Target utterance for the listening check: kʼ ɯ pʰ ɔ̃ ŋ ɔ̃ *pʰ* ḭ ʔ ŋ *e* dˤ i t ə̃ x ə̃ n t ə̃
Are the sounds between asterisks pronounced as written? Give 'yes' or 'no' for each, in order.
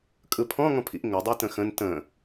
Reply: yes, no

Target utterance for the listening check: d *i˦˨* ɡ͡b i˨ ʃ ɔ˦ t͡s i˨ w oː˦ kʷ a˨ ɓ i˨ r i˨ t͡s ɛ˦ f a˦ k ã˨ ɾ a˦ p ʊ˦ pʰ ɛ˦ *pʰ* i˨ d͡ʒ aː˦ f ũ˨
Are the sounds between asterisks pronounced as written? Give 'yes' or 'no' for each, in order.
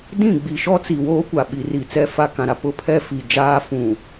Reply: no, no

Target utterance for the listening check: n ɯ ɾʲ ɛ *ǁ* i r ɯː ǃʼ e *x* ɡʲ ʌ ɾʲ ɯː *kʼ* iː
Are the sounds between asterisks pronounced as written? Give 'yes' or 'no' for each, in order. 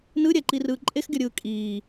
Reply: no, yes, yes

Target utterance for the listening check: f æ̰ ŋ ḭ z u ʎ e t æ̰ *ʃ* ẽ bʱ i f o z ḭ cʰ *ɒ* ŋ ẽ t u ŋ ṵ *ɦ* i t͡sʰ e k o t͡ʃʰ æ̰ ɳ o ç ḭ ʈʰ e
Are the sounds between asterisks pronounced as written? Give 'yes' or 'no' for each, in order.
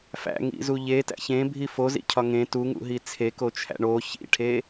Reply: no, yes, yes

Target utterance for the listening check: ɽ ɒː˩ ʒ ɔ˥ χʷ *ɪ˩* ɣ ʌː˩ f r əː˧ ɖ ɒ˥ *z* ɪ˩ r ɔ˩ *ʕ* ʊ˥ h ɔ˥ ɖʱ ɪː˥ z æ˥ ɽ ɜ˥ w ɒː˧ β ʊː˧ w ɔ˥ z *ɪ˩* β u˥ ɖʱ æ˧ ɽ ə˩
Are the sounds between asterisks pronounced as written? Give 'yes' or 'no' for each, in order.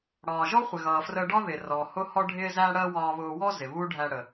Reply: yes, no, no, yes

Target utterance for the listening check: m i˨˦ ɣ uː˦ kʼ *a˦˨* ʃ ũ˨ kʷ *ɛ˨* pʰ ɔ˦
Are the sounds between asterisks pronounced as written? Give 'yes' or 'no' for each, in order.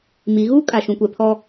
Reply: no, yes

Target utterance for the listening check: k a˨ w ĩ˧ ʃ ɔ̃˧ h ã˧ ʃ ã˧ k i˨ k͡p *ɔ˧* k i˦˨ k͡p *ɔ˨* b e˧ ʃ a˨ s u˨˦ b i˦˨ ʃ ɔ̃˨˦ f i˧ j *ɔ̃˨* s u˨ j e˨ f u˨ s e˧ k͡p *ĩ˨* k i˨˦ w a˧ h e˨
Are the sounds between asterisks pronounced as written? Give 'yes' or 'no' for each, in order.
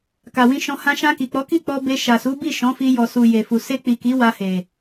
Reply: no, no, no, no

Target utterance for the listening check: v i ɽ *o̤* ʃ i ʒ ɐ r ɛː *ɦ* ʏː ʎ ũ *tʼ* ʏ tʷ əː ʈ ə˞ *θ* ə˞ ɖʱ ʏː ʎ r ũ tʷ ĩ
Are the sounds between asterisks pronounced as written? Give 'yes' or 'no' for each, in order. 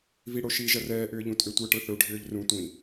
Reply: no, no, yes, yes

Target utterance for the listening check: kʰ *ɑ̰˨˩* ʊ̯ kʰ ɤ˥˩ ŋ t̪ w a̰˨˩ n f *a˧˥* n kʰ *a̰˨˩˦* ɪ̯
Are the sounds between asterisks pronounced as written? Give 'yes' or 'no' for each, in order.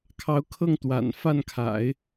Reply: no, no, yes

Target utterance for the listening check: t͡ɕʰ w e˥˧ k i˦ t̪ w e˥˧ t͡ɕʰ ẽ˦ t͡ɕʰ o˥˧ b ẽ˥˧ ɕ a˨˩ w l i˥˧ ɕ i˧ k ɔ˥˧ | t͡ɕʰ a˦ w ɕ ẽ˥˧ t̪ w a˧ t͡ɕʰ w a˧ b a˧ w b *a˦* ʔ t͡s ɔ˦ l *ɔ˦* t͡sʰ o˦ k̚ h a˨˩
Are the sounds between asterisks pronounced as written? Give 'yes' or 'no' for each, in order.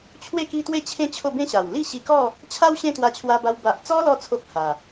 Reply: no, no

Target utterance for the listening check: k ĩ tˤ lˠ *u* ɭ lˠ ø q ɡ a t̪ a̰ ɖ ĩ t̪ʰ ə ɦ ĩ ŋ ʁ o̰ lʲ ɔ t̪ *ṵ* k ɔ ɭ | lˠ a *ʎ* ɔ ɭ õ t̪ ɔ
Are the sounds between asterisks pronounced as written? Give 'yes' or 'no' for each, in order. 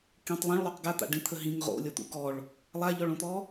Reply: no, yes, yes

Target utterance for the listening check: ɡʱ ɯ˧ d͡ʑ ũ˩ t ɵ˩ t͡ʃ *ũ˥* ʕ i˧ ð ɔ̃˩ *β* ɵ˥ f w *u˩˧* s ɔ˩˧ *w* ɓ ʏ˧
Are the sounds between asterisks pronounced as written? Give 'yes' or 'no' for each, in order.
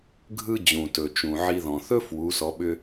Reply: no, no, yes, no

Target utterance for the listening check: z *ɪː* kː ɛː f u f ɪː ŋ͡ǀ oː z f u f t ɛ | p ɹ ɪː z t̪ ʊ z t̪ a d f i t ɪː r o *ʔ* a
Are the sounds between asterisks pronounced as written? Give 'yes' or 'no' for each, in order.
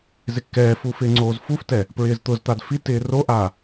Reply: no, yes

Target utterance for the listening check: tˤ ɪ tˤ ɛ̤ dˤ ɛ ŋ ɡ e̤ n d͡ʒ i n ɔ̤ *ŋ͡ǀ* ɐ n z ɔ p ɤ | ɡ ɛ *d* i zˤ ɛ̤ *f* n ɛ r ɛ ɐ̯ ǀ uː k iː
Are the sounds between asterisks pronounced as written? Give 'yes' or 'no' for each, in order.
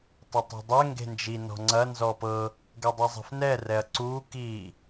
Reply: yes, no, yes

